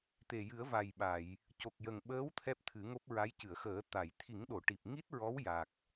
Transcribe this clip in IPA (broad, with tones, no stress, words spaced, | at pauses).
t̪e˨˩jɨ˨˩˦ə̯va˨˩jɓa˨˩˨j | co˨˩k̚jə˨˩ŋɓəː˧˥w t̪ʰɛ˦˥p̚t̪ʰɨ˨˩˦ŋo˦˥p̚ɹa˧˥j cɨ˨˩˨ə̯xəː˨˩˦t̪a˨˩˨j t̪ʰi˨˩˦ŋɗo˨˩˨ ʈi˨˩p̚ŋi˦˥t̚ɹɔ˧˥w ja˨˩k̚